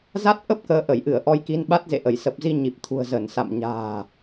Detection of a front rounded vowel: absent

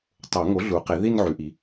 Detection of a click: absent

